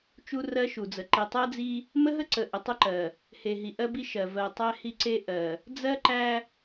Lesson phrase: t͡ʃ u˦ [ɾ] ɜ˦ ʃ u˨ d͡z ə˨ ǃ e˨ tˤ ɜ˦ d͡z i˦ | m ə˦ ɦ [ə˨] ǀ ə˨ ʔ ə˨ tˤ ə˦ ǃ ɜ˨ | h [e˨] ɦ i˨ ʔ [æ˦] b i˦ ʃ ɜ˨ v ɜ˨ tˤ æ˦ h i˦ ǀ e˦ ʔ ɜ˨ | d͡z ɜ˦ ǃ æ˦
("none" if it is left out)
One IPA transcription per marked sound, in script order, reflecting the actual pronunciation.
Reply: r, ə˦, e˨, ɜ˦

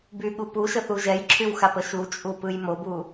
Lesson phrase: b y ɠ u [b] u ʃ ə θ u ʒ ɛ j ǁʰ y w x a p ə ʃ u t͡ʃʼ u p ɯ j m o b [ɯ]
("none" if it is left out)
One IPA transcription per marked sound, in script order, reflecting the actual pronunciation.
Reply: p, u

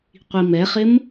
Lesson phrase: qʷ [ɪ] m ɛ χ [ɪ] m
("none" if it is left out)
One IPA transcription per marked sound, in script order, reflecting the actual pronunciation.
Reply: i, ɪ

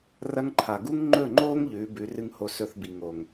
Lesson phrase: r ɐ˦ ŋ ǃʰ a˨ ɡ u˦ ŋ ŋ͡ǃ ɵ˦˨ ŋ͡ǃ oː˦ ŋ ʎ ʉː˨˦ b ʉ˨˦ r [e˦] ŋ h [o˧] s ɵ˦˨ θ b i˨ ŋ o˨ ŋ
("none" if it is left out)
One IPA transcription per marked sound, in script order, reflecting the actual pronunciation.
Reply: ɨ˦, o˧

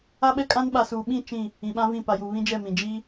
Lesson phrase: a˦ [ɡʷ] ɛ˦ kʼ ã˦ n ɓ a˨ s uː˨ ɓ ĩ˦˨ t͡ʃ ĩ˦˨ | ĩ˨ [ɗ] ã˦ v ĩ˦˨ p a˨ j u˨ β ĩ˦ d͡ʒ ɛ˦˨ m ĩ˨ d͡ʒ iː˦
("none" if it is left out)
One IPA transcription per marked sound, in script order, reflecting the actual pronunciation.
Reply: ɓ, ɓ

